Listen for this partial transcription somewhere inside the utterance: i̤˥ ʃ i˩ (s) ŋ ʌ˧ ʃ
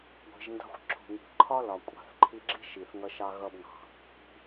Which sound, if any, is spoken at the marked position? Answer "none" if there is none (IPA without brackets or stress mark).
θ